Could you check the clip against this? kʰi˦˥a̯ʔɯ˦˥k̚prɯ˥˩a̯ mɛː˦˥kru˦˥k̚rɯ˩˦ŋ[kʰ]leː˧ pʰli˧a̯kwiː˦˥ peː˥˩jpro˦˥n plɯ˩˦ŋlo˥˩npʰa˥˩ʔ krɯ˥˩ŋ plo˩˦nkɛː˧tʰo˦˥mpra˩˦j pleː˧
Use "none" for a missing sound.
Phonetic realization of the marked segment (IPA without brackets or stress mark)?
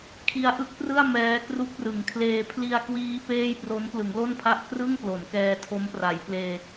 kʰ